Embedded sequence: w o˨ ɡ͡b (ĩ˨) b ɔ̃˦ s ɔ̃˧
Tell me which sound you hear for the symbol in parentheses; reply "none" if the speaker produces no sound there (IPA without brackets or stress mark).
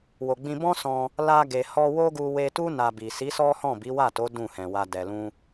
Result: ĩ˧